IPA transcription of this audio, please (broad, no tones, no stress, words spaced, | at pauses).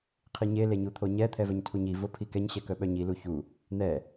qʰiɲe leɲut̪ʰoɲɛ t̪ʰɛvœɲtʰuɲi vopʰikɛɲ ɕɛkœɓœɲi luçu | n̪ɛ